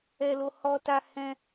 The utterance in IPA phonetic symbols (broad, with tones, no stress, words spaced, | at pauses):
ɛ˦ lo˦ hɔ˦ta˦ hɛ̃˦